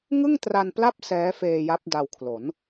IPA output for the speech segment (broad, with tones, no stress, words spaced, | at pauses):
ŋɯ˥˩ŋtra˧npla˥˩p̚ sɛː˦˥feː˧ ja˦˥p̚da˧wkʰlo˩˦n